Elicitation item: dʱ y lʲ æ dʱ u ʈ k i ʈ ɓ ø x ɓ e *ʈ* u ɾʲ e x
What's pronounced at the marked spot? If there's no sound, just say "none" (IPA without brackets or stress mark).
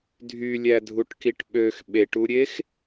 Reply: ʈ